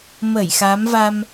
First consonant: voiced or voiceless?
voiced